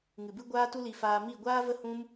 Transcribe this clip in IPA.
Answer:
ŋ ɨ˨ b ɨ˦ ɡʷ aː˦ t u˦ l i˧ f aː˧ m i˦˨ ɡʷ aː˦ v ə˦ h ũ˦ m

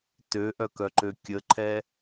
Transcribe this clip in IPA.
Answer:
t ø ʔ œ k œ ǃ ø kʲ ə ǃʰ ɛ

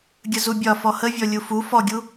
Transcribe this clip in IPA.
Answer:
ɡʲ ə z u bʲ ɒ f ɔ h ə vʲ ɔ lʲ u f u f ɔ ɡʲ u

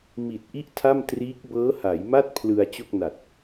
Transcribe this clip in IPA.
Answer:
m i˨˩ t̚ ʔ i˥˩ ʔ tʰ a˥˩ m t r iː˦˥ k̚ b ɤː˦˥ h a˩˦ j m a˥˩ t̚ pʰ l ɯ˧ a̯ t͡ɕ o˥˩ k̚ n a˨˩ t̚

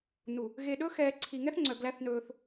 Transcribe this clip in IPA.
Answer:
n u˨ | ɣ e˨ ɗ ɵː˦ x ɛː˨ ǀʰ i˨ ŋ ɛ˦ θ ŋ͡ǀ œ˨ ɡ l æ˦ θ n ɵː˦ θ

